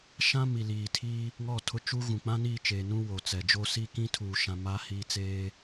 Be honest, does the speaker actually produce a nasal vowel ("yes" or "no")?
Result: yes